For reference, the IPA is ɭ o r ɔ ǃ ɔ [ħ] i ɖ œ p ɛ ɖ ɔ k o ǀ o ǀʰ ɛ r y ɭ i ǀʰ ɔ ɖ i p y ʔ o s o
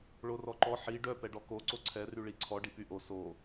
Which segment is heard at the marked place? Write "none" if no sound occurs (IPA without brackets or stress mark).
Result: ħ